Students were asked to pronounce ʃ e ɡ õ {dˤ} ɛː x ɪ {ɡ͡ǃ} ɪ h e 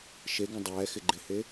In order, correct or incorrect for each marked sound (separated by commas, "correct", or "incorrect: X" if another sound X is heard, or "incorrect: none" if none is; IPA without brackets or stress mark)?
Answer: correct, correct